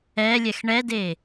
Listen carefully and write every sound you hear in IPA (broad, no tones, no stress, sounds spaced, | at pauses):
ɛ lʲ ɛ x ɳ ɛ d e